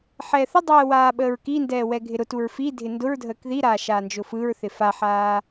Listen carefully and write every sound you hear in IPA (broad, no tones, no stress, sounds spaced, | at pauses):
ħ ɛː θ ə dˤ ɛː w aː ɓ əː ɹ k i n d ɛː w ɛ ɡʱ ɪ ɾ ʊ t u ɹ f i dʱ ɪ n d ʊ ɹ dʱ əː k ð i ɾ aː ʃ aː n d͡ʒ ʊ f ɯ ɹ θ ɪ f a ħ aː